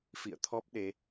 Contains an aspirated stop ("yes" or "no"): yes